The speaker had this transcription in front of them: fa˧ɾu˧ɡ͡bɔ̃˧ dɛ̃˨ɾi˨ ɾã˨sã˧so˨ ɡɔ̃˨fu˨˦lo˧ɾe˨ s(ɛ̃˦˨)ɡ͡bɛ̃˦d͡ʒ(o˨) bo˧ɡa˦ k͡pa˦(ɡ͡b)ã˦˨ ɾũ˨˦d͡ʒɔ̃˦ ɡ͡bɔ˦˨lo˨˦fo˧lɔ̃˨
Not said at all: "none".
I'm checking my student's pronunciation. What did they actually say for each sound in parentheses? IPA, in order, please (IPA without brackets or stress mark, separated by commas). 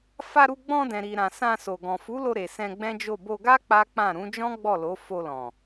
ɛ̃˧, o˦˨, k͡p